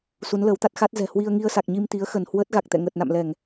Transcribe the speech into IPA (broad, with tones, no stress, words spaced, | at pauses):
su˨˦nləː˨˦wt̪a˦˥t̚ xa˦˥t̚zɛ̤˨˩ hwi˧ə̯ŋi˧ə̯sa˨˩k̚ ɲi˧mt̪i˨˦ə̯xə˧˩nhwəː˦˥t̚ ɣa˨˩k̚ t̪ɛ̰˧˨ŋəː˨˩t̚na̰˧˨mlɛ˧˩˨ŋ